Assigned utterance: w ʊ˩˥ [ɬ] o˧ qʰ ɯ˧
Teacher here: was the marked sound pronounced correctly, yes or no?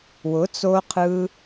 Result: no